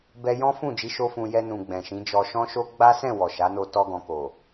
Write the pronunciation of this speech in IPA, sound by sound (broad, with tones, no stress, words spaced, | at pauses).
bɛ˦ jɔ̃˦fũ˦˨ d͡ʒi˧ʃo˧ fũ˨ jɛ˧nũ˨ ɡ͡bɛ̃˨ʃĩ˨˦ d͡ʒɔ˧ʃɔ̃˦ʃo˦ ɡ͡ba˦sɛ̃˦˨ wɔ˨ʃa˨˦no˧ tɔ˧ɡɔ̃˨ko˨